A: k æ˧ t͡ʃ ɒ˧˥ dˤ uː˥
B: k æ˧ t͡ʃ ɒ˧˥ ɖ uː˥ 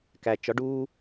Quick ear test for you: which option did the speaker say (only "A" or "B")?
B